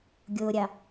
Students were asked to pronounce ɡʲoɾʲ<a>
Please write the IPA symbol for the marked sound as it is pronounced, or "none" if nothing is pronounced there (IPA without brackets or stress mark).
ɑ